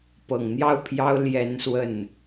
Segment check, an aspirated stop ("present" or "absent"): present